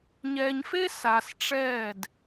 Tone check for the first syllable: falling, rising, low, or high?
low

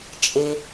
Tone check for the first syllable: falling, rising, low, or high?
high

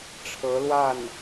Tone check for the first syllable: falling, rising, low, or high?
rising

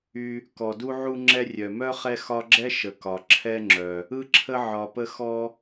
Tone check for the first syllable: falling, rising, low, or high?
low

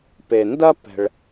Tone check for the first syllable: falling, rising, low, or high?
low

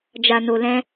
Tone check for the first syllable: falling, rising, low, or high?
low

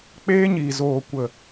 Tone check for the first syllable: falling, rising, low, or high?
high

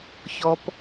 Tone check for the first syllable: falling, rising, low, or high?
high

